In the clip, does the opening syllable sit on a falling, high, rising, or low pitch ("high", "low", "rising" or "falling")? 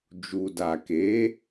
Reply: low